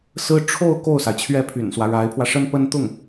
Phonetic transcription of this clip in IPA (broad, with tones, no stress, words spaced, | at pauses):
sɹ̩˥ ʈ͡ʂʰo˥˧ʊ̯ ko˥˩ʊ̯sa˩ɪ̯t͡ɕʰɥɛ˥˩ pʰy̰˨˩nswä˦ ɻa˧˥ɪ̯pʰwä˧ʂə˥n pə˥nt̪ʊ˥˩ŋ